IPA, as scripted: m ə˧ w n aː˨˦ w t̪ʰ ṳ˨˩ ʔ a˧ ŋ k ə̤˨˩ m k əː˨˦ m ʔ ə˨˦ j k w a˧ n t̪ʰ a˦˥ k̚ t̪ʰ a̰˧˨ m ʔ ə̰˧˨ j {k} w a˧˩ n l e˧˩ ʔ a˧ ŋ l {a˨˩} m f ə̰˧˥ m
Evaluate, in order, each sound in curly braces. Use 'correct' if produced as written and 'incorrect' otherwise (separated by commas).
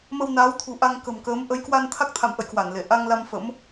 correct, incorrect